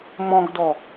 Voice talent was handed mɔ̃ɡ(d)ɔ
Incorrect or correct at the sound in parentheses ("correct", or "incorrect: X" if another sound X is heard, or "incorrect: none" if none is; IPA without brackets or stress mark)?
correct